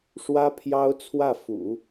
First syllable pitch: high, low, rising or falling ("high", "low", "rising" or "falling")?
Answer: high